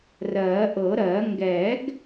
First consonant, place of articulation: alveolar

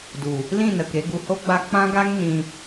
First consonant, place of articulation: alveolar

